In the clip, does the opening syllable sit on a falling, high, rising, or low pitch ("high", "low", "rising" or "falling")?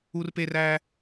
high